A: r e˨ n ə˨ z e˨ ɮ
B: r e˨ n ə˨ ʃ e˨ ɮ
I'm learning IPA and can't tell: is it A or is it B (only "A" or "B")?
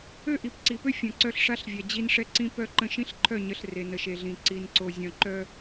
B